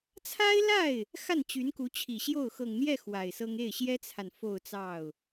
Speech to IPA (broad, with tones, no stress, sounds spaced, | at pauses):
t͡sʰ a˥ ɪ̯ l a˥˩ ɪ̯ | x a˥˩ n t͡ɕ y˧˥ n k u˧˥ t͡ɕʰ i˨˩ ɕ j o˥˩ ʊ̯ x ɤ˨˩ ŋ n̪ j ɛ˥˩ x w a˨˩ ɪ̯ s ɤ˥ ŋ e˥˩ ɪ̯ ɕ j ɛ˥ t͡sʰ a˨ n f o˥˧ ʊ̯ t͡s ɑ˥˩ ʊ̯